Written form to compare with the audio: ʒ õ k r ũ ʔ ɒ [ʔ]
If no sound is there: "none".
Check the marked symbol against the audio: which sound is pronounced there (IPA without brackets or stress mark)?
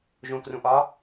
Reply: none